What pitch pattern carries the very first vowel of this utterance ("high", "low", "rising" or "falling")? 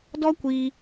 high